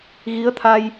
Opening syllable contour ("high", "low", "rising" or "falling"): rising